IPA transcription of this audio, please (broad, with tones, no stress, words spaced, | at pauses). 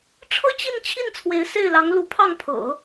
ʈ͡ʂʰɤ˥t͡ɕi˥˧nt͡ɕʰi˥˩n t͡sʰwe˧˥ɪ̯se˥˩ɪ̯lɑ˧˥ŋ lu˧˥pʰɑ˥˩ŋpʰɤ̰˨˩˦